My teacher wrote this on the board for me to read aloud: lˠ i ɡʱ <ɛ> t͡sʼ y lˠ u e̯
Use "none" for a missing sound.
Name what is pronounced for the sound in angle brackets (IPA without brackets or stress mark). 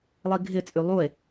ɪ